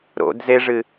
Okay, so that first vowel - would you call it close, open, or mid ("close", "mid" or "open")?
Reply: mid